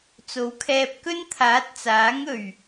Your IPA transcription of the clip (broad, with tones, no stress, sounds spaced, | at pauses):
t͡s o˨˥ w kʰ ɛː˧ p̚ k ɵ˥ n t̪ʰ aː˨˥ t̚ t͡s aː˨˥ ŋ ɵ˨˩ ɥ